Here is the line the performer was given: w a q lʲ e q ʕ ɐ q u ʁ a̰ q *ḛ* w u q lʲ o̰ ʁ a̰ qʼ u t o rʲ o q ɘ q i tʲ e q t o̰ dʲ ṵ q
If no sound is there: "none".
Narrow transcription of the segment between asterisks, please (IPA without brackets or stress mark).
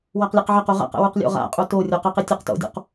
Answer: ɛ̰